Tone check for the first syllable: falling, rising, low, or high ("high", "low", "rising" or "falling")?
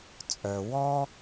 low